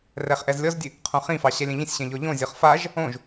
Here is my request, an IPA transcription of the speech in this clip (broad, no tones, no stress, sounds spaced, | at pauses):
r ɛ χ ʔ ɛ z lʲ ɔ z dʲ ɨ | qʰ õ χ ĩ f ɑ ɕ ɛ lʲ ɛ̃ ʎ ĩ sʲ ɕ ɛ̃ ʎ ɔ ʎ õ zʲ ɔ χ f a ʒ | õ ʒ